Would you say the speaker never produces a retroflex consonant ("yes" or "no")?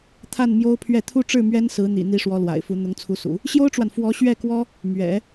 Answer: no